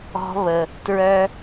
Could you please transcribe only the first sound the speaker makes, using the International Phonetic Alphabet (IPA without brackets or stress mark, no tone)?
ɔ̤